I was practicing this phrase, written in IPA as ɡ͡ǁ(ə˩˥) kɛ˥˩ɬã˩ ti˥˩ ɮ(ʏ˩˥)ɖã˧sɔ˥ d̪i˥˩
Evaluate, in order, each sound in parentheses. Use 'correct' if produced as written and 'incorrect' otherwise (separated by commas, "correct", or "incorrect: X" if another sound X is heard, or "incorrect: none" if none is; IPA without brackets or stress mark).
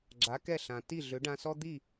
incorrect: a˩˥, correct